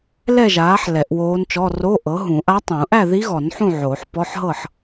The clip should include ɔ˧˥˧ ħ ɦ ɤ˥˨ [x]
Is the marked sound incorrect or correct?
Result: incorrect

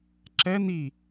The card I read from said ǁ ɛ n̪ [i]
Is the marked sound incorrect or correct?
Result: correct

